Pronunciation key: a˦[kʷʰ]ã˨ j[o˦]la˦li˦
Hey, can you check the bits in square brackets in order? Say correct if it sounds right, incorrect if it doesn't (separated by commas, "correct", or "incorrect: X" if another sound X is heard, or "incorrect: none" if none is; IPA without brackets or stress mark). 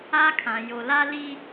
incorrect: kʰ, incorrect: o˨